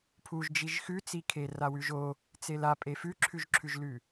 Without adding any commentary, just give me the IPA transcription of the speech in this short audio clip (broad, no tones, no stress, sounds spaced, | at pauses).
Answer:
pʰ u ʒ d͡ʒ i ʒ x ʉ t͡s i kʰ e r a w ʉ ʒ o | t͡s e l a pʼ e f ʉ ǁʰ ʉ ʒ ǁʰ ʉ ʒ l ʉ